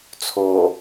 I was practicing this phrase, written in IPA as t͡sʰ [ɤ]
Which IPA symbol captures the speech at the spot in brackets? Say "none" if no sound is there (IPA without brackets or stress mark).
o